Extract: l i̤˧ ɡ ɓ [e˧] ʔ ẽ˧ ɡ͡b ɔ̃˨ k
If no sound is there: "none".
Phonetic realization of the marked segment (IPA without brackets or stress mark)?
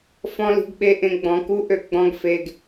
e˧